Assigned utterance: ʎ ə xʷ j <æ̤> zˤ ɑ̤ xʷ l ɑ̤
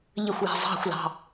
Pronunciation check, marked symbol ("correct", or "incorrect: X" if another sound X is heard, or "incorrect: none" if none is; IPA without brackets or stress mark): correct